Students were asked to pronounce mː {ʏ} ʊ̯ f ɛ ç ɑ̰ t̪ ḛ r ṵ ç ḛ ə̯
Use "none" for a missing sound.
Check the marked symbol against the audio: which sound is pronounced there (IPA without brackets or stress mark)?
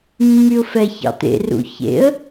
y